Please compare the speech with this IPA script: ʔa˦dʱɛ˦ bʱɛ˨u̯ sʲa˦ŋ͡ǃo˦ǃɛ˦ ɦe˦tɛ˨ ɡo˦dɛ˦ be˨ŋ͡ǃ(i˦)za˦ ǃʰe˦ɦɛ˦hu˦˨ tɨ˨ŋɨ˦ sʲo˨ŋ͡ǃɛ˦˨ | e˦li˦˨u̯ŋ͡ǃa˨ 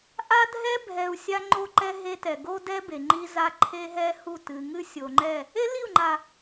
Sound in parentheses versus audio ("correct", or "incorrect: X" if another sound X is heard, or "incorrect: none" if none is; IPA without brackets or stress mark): correct